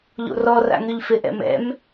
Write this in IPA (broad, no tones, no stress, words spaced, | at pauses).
ʎo̰rɔra̰ ŋyʎfɪʔɛ̰ mɛ̰m